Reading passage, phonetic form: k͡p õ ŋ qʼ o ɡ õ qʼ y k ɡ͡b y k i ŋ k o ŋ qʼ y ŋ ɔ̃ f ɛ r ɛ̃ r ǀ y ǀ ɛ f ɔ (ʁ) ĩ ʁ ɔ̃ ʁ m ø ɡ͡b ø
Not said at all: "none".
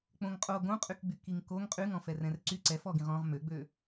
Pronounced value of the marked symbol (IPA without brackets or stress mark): ɡ